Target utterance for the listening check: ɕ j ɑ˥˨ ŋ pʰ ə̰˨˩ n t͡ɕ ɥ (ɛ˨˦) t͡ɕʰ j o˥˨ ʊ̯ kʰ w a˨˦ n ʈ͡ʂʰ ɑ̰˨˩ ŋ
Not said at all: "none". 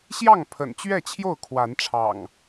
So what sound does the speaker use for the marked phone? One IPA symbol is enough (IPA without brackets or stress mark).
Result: ɛ˥˨